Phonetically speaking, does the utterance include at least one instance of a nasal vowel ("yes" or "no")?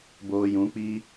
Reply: yes